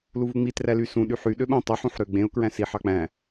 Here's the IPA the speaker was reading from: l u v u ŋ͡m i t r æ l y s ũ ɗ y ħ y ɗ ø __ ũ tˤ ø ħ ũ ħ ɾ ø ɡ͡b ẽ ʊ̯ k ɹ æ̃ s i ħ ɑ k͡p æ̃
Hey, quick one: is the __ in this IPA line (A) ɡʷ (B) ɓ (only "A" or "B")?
B